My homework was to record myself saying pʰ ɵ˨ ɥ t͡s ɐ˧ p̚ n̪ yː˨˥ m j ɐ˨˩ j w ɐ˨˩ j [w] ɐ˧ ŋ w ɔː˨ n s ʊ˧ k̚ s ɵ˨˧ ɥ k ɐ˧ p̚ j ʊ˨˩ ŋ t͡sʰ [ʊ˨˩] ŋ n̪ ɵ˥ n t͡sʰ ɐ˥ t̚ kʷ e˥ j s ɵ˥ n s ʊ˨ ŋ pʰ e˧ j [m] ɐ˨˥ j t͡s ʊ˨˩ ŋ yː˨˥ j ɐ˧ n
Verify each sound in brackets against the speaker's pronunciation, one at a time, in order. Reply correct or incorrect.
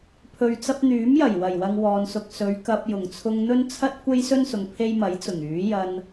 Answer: correct, incorrect, correct

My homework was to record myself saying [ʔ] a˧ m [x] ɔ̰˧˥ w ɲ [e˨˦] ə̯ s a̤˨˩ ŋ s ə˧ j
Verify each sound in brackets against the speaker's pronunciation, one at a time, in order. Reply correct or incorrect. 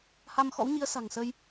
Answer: incorrect, correct, incorrect

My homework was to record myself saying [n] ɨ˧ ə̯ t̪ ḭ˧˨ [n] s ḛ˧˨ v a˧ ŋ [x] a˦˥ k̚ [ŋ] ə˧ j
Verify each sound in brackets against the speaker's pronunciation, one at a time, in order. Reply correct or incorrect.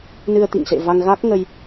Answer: correct, incorrect, incorrect, correct

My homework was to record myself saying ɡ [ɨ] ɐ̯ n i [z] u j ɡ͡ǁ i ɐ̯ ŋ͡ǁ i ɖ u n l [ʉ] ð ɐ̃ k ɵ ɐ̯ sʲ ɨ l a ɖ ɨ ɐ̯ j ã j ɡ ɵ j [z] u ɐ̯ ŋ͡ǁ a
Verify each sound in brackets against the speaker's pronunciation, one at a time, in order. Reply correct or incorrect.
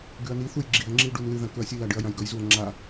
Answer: incorrect, incorrect, incorrect, correct

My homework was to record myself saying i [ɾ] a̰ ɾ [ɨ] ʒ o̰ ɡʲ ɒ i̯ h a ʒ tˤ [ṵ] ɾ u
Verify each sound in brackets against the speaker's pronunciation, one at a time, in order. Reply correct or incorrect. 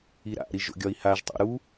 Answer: correct, incorrect, incorrect

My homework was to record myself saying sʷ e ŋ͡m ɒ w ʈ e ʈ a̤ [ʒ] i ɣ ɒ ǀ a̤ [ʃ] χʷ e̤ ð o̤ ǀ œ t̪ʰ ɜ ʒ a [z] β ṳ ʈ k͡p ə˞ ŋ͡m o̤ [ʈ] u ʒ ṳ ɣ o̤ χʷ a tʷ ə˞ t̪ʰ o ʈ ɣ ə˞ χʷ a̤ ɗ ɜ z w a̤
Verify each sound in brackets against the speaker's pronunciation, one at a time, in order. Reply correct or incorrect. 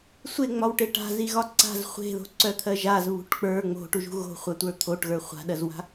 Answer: incorrect, incorrect, correct, correct

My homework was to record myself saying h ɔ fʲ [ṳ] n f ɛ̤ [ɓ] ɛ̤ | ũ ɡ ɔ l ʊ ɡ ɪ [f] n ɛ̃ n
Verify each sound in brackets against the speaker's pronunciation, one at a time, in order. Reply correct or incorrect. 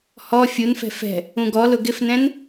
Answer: incorrect, incorrect, correct

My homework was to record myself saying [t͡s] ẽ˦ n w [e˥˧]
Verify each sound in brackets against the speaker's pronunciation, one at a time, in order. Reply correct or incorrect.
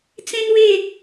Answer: correct, correct

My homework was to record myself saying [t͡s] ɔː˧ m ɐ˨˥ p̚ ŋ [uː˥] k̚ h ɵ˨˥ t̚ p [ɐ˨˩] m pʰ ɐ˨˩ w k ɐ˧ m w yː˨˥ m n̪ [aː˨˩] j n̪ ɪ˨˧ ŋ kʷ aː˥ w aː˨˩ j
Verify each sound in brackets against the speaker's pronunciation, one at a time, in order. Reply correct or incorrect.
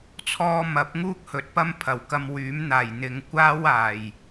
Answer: incorrect, correct, incorrect, correct

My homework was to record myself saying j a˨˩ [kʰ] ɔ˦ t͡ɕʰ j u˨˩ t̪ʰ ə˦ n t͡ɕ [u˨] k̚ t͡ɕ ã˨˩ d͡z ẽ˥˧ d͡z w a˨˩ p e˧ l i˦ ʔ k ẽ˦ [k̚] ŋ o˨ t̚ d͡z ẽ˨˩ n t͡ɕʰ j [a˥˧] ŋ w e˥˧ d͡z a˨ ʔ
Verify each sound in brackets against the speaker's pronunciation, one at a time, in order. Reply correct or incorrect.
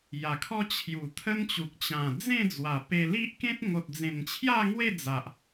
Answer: correct, correct, incorrect, correct

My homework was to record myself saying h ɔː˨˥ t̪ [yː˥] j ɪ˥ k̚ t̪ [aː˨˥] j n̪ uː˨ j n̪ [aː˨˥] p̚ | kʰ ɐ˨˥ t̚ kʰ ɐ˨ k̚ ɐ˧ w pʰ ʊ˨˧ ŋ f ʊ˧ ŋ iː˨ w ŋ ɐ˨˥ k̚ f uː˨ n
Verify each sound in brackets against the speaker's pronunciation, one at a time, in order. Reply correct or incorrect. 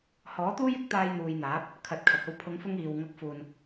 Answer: incorrect, incorrect, correct

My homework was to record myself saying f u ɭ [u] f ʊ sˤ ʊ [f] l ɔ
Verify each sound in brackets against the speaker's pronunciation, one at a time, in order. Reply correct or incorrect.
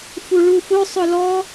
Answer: correct, incorrect

